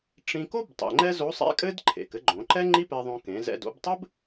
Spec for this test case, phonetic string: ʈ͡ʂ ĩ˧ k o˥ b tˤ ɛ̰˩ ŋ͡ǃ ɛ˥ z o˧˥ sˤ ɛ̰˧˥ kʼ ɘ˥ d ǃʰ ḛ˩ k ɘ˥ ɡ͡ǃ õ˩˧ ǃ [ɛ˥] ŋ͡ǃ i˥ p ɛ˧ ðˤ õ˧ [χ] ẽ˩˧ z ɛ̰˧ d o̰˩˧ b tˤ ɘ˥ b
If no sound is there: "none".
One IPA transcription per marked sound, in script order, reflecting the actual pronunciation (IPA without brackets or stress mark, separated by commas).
ɛ˥, k